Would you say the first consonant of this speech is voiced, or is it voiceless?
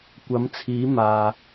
voiceless